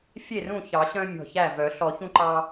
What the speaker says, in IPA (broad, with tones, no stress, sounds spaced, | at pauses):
fʲ e˥˩ r ũ˥˩ ç ɑ˨˩˦ ɕ œ̃˦ mʲ ɔ̤˧˩ ç æ˥˩ v œ˨˩˦ ɬ ɔ˨˩˦ ç ũ˦ ǃ ɑ˦